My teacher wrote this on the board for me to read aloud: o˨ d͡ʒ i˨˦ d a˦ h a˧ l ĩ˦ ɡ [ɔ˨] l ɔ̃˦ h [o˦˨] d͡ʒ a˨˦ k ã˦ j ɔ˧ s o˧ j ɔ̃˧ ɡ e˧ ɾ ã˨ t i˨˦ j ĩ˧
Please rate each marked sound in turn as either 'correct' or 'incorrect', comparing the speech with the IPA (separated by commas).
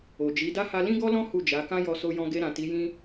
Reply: incorrect, incorrect